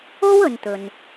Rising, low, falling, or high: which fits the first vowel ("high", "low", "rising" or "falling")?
high